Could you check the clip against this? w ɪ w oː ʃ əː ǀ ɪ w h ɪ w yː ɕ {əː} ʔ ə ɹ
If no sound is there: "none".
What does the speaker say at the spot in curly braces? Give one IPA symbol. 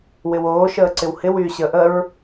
əː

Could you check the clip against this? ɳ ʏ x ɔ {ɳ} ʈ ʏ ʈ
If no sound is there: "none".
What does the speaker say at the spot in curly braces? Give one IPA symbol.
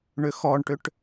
ɳ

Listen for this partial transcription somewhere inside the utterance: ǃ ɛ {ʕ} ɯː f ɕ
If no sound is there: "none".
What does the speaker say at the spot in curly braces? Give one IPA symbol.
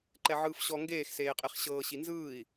ʕ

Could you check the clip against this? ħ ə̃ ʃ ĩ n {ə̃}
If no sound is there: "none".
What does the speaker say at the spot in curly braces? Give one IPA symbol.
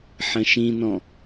ɔ̃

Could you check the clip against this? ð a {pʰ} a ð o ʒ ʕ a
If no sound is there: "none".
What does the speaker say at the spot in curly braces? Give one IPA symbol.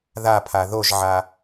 pʰ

